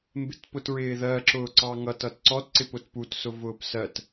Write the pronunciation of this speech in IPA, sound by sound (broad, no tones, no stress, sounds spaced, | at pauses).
m b ɪ t p ʊ t ɹ ɪː ð ɜ ǁ ʊː ǀ ɑ ŋ ʌ t ʌ t ǀ ɔ t ǀ ɪ p ʊ t p u t s ʊ v ʊː p s ɜ t